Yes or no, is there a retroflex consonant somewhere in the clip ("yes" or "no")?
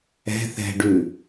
yes